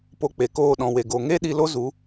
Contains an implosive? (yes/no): yes